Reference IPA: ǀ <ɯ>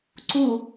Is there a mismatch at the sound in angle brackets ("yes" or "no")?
yes